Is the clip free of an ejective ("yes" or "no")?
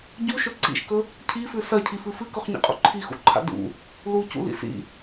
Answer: no